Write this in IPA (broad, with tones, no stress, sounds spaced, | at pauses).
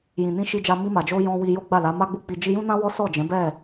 j ĩ˨ n ĩ˧ ʃ i˧ d͡ʒ a˧ m i˧ m a˨ d͡ʒ o˧ j ɔ̃˧ w i˧ j o˦ ɡ͡b a˦˨ l a˨˦ m a˦ ɡ͡b u˦ k͡p i˧ d͡ʒ i˧ j ũ˦ n ã˦ w ɔ˦ s ɔ˦˨ d͡ʒ ɛ̃˨˦ b ɛ˦˨